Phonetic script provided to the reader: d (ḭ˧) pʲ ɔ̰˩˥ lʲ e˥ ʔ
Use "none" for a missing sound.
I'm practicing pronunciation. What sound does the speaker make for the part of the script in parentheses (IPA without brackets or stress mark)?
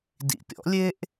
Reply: ḭ˧